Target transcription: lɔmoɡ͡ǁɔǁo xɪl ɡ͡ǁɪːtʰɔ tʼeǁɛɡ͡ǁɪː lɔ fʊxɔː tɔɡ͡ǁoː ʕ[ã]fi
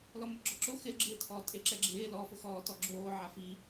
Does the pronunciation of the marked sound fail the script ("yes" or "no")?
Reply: yes